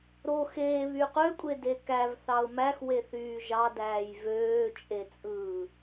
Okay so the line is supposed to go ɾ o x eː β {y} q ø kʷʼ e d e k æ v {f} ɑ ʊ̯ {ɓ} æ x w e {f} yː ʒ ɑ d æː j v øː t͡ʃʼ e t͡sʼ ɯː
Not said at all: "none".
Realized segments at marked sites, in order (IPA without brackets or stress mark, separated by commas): y, θ, m, θ